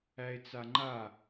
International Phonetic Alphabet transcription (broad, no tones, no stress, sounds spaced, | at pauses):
æ e̯ t͡s a ŋ͡ǃ a